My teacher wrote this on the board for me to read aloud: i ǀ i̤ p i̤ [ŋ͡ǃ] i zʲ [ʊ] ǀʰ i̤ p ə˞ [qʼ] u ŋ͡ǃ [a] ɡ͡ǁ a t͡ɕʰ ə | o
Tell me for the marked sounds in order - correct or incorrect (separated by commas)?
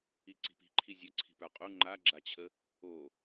incorrect, incorrect, correct, correct